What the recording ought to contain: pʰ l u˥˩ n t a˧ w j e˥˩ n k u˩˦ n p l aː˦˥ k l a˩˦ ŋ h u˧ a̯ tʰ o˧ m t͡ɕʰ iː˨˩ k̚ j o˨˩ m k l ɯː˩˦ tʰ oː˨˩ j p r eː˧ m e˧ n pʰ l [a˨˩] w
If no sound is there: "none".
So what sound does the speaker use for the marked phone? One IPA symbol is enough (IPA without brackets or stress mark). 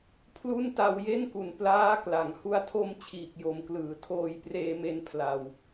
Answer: a˨˩